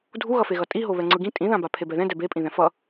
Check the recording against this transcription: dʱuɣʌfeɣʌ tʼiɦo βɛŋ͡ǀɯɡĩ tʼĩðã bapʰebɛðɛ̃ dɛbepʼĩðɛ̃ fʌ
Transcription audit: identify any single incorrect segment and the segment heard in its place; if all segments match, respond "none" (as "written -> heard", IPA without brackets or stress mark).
none